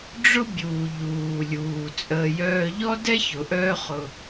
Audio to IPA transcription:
ɖ͡ʐ ʊ˦ bʲ uː˨ ʎ uː˨ lʲ uː˨ t͡sʼ əː˧ j œː˦ ʎ ɔ˦ d ɛ˦ ç ʊ˨ ʔ œː˦ χ ʊ˧

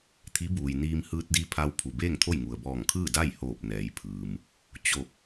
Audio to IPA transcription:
t̪ʰ i˧˥ b uː˩ j n iː˧ m h ɯː˧ t̚ d i˧˥ pʰ a˧ w pʰ u˩ b eː˥˨ ŋ t̪ʰ o˥˨ j ŋ u˩ ə̯ b ɔː˧˩ ŋ kʰ ɯː˥˨ d a˥˨ j h oː˧˩ p̚ n ɛː˩˧ j pʰ ɯː˩ m | t͡ɕ o˧˩ k̚

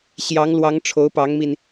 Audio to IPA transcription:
ɕ j ɑ˧˥ ŋ l w ɑ˧˥ ŋ ʈ͡ʂʰ o˧˥ ʊ̯ p ɑ˧˥ ŋ m i˧ n

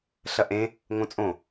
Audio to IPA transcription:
ɬ ɐ ʔ ẽ | ŋ õ t͡sʼ õ

